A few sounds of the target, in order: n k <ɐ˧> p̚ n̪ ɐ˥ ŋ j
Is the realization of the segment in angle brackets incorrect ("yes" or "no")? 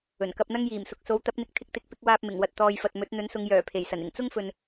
no